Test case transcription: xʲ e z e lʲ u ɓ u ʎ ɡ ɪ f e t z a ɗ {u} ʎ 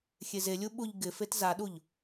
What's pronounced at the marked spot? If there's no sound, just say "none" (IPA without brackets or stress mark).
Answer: u